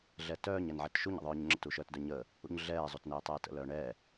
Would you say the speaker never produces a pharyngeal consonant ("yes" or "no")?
no